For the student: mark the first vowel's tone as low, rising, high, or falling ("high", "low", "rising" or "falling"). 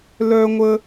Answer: high